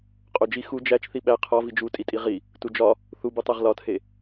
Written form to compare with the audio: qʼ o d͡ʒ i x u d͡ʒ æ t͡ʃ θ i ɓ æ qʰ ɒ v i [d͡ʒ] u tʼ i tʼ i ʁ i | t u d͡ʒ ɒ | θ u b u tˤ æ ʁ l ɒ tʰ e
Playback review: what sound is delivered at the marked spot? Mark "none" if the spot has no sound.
d͡ʒ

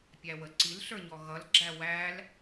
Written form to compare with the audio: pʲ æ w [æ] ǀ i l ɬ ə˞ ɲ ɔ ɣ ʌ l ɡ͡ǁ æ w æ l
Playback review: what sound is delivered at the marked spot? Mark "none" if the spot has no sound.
ə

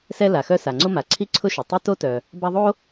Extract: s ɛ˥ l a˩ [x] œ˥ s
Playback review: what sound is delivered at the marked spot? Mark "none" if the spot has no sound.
x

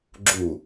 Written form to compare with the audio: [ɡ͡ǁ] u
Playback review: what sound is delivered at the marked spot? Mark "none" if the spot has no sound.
ɡ͡ǁ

